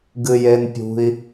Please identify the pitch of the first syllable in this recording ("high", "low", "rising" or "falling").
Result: high